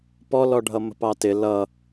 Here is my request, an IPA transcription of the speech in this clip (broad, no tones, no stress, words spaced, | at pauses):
pɔlɔɖʱʌ mə̤pɑtɪ lʌ